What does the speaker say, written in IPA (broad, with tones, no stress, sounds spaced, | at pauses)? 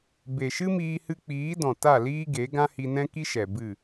b e˨ ʃ ɨ˦ m iː˧ h ɨ˧ k͡p iː˨˦ d ɔ̃˨ t a˦˨ l iː˦ ɡ e˨˦ ɡ ã˦ h i˧ n ɛ̃˦ k i˦ ʃ ɛ˨ b ɨ˦˨